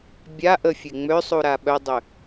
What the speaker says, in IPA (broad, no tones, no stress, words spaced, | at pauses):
bʲa ʔəfʲe ŋ͡møsˤuɾa ɓœdˤø